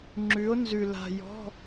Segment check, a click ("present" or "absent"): present